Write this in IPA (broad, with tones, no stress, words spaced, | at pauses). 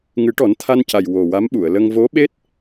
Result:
ŋɨ˨˩˦ʈɔ˨˩˦nt̪ʰa˧nca˨˩j wo˨˩wa˧˥mɓu˨˩˨ə̯lə˧ŋ vo˧˥ɓe˦˥t̚